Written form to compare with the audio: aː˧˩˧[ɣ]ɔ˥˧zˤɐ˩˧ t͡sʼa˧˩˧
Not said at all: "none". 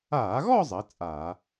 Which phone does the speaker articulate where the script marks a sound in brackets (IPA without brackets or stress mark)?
ɣ